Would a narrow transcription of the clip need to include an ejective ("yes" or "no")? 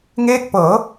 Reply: no